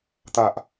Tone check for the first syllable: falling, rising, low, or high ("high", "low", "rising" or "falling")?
low